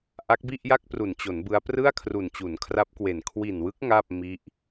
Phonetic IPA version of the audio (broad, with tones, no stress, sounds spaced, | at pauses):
ʔ a˦˥ k̚ b i˥˩ ʔ j a˥˩ k̚ p r u˨˩ n t͡ɕ o˩˦ n b ɯ˦˥ a̯ p r ɯ˥˩ a̯ kʰ r u˨˩ n t͡ɕ u˩˦ n kʰ r a˦˥ p̚ k w e˨˩ n kʰ w i˨˩ n w ɯ˦˥ k̚ ŋ a˥˩ p̚ m i˦˥ ʔ